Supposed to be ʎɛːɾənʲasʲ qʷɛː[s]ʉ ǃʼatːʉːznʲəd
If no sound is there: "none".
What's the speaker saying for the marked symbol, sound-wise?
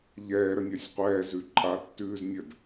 z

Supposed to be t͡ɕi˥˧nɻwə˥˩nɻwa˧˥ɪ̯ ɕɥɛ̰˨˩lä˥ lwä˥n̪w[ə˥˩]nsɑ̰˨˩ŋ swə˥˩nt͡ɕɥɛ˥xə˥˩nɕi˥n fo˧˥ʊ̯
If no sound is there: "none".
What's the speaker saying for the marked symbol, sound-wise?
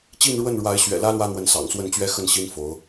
ə˧˥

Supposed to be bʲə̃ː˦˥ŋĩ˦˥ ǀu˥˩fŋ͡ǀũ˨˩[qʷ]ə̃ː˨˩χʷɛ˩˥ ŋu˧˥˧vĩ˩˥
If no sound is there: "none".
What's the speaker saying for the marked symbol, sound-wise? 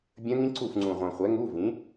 ʁʷ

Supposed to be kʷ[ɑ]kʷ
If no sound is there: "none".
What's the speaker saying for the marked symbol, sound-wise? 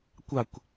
ɑ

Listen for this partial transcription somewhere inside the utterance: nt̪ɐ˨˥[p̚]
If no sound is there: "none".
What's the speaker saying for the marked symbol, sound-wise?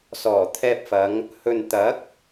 k̚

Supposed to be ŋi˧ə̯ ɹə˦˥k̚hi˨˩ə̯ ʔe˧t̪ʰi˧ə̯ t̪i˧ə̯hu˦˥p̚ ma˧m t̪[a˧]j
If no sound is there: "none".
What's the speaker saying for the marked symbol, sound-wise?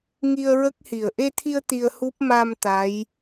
a˧˥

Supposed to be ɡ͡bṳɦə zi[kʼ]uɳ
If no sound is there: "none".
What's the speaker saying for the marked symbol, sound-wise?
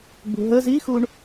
x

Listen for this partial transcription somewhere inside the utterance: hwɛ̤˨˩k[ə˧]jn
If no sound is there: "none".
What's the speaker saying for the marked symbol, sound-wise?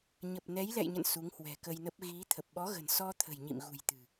ə˧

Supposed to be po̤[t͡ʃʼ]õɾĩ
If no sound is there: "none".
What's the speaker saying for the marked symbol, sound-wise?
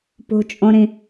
t͡ʃʼ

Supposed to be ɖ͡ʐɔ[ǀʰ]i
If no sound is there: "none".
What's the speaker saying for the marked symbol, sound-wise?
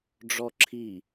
ǁʰ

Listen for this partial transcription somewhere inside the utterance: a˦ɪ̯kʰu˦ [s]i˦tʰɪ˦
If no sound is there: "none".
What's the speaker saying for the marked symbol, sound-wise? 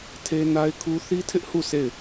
θ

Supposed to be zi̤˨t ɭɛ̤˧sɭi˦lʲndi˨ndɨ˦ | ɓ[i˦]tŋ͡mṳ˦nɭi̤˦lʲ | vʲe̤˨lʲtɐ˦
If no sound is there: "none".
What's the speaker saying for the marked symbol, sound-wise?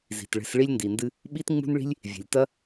i˦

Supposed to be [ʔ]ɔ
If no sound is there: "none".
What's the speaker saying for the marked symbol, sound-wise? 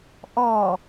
ʔ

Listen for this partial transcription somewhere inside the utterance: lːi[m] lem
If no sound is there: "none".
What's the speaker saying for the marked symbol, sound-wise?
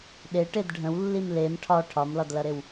m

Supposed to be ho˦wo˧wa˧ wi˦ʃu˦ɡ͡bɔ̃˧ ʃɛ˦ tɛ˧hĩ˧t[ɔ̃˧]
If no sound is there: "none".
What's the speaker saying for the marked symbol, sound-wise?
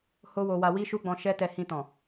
ɔ̃˨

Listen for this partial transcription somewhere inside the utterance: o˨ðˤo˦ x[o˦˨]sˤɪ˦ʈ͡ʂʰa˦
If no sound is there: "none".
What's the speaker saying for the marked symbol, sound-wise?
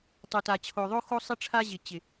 o˦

